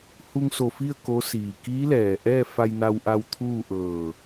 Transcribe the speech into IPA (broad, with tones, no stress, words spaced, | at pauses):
hu˧ŋso˧˩fi˥˨ə̯ ko˧˥ siː˩kiː˧˥lɛː˩ ʔɛː˥˨fa˧jna˧wʔa˧w t̪ʰuː˥˨ʔɤː˧˩